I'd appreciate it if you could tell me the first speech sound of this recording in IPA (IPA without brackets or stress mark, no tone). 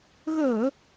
ɣ